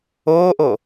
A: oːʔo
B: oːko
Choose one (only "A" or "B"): A